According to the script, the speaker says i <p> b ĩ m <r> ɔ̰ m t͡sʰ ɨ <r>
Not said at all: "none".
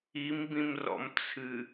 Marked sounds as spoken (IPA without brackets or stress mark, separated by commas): m, r, none